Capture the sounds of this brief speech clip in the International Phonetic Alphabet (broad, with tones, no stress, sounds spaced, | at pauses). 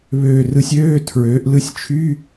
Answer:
β øː˧˩ r ɯ˧ sʲ øː˧˥˧ tʰ ɹ øː˩˧ ʔ l ɯ˧ sʲ t͡ʃʰ y˧˥˧